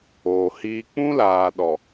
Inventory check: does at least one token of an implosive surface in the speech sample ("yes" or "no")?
yes